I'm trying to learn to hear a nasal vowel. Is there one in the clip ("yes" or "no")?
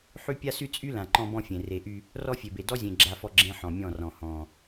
yes